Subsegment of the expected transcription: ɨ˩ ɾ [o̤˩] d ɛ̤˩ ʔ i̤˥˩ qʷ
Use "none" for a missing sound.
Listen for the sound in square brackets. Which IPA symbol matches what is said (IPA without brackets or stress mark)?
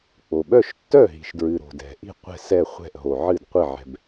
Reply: o̤˩